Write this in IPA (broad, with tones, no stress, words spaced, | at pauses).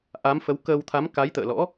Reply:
ʔa˨˦mfə˨˦w kəː˧wt̪ʰa˨˦m ka˨˦jt̪ə̰ː˧˨lɔ̰˧˥